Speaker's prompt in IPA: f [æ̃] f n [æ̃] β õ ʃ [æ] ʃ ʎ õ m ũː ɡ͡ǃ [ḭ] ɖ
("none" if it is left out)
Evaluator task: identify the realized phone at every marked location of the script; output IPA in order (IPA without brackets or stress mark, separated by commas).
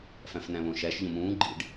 æ̃, æ̃, æ, ḭ